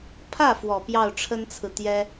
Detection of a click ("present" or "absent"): absent